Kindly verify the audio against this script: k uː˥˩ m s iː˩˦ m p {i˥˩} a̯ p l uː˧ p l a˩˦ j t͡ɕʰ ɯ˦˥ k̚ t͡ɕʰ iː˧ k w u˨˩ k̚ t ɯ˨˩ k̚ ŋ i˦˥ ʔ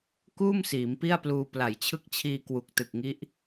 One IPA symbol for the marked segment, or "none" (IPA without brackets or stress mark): i˥˩